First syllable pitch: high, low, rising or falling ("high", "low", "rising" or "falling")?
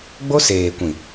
high